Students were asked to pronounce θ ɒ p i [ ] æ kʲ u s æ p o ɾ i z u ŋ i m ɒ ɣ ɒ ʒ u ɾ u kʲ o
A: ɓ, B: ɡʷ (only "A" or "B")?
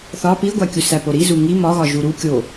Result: B